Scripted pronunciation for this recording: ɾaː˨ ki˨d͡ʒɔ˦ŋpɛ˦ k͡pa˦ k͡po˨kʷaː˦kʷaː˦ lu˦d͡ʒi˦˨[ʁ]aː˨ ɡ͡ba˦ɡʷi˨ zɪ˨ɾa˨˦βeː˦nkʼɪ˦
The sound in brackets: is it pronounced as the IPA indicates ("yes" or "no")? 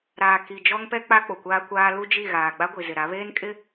no